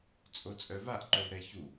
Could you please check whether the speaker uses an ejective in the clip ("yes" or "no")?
yes